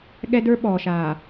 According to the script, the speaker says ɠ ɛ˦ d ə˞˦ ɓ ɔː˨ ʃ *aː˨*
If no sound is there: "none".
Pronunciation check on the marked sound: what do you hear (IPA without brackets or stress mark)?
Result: aː˨